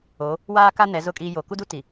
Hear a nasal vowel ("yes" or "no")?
no